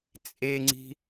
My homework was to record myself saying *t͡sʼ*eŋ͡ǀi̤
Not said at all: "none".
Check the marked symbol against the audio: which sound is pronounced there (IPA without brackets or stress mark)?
t͡sʼ